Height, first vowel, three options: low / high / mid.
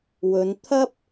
mid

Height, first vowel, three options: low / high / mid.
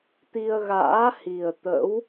high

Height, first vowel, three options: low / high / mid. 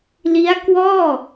high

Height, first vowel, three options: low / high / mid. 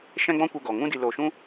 mid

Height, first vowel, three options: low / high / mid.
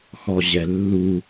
mid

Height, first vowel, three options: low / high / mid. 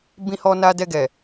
high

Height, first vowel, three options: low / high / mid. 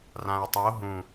low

